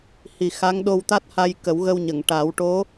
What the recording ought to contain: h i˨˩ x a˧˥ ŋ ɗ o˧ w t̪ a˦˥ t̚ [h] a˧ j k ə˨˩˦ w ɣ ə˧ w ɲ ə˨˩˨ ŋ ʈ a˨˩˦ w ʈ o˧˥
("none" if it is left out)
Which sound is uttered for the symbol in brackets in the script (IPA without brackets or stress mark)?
h